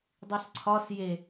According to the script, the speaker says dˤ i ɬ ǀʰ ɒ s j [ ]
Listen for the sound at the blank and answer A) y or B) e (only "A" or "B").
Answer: B